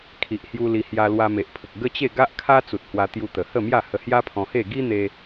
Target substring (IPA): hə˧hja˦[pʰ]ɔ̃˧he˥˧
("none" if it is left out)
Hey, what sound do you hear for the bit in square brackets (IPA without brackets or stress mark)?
pʰ